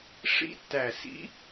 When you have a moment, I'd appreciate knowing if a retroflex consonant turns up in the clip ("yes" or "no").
yes